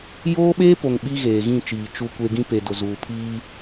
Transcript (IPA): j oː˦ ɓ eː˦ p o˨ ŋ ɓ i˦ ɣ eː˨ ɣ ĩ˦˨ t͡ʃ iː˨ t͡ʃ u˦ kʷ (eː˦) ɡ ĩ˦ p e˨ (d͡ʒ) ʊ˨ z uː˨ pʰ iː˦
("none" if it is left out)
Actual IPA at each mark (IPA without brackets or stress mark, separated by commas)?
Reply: e˦, d